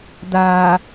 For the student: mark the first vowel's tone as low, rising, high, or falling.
low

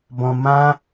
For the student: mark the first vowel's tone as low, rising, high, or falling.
low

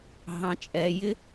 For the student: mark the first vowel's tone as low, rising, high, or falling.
low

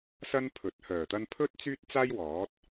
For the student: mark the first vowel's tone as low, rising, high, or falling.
high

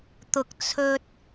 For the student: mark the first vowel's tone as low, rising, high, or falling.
low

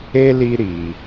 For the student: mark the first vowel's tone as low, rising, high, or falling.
high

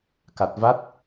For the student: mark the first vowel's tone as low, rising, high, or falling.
low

